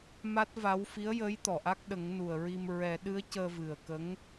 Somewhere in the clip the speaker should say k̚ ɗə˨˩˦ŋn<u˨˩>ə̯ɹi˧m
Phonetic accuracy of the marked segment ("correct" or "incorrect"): correct